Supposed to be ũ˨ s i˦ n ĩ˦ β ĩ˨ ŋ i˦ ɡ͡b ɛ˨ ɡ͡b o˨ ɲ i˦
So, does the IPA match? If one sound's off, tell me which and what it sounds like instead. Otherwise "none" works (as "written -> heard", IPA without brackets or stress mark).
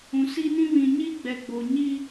ŋ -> ɲ